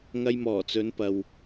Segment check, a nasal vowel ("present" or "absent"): absent